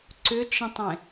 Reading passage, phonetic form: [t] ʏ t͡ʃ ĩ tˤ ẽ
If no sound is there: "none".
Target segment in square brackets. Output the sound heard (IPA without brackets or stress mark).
ǀ